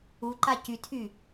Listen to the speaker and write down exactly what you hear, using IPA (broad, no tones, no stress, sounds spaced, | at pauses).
u ǃ a c y tʰ y